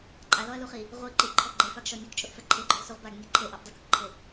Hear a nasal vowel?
no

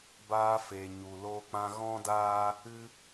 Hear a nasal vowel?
yes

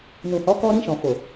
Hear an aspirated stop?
no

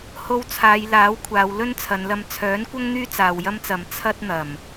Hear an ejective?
no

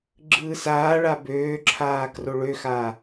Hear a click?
yes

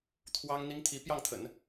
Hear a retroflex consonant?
no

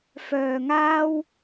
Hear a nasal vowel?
no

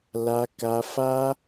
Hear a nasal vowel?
no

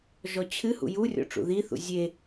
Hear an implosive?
no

